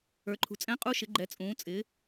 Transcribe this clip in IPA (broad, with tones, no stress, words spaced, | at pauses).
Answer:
ə˞˩˧ǃʰṳ˩˧t͡sʼɛ̃˧˥ qʼu˧˥ʃɪ˩˧ɡ͡ǃɛ˩˧ t͡sʼũː˩˧t͡sʼɪː˩˧